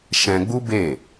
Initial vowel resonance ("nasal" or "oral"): nasal